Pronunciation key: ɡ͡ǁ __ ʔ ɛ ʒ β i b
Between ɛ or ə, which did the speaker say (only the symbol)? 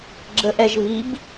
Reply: ə